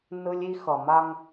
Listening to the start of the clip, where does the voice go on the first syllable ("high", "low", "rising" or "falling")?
high